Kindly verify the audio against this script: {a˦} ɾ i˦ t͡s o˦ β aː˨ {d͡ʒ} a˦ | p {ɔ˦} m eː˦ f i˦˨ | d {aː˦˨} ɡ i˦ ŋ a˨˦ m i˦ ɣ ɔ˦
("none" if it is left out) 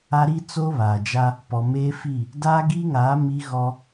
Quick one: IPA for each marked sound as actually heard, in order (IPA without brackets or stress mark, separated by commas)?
a˦, d͡ʒ, ɔ˨, aː˦